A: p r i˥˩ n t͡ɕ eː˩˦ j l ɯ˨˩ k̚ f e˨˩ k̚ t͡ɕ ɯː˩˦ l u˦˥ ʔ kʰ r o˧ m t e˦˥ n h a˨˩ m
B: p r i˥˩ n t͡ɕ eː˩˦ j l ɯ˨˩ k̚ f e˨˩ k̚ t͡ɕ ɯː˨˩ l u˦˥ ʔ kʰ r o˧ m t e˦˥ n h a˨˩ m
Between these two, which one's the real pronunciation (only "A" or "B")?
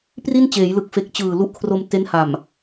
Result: B